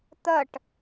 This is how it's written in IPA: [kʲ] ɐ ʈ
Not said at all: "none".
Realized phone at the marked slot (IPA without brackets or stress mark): t̪